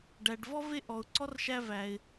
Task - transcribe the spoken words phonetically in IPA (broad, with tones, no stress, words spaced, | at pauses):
ɖæ˩ɖvɔ˥ ve˥ʔɔ˩ʊ̯ǀɔ˥r ʃæ˥væ˩ɪ̯